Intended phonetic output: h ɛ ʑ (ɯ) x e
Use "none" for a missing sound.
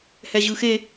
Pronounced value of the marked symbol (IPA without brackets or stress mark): ɯ